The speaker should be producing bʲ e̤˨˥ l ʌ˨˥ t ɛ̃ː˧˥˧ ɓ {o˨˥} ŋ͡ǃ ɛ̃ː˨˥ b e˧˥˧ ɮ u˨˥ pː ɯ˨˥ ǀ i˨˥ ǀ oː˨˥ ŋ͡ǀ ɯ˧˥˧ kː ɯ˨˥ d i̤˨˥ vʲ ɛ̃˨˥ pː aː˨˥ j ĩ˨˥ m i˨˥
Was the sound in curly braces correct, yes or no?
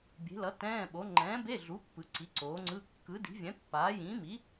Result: yes